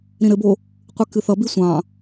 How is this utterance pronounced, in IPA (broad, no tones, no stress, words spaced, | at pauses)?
ɾĩɾɘbo | qʷɨkɨθʌbi sʷɑ̃